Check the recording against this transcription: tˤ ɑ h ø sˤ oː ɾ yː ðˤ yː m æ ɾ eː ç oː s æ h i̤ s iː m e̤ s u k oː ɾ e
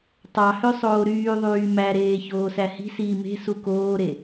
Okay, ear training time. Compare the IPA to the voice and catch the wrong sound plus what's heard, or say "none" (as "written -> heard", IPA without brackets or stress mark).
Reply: none